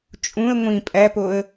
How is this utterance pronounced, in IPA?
t͡ʃʼũə̯ ŋʷĩ pʼæpoə̯

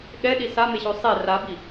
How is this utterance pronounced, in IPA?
ɠɛɗi sameɕo sˤe rabi

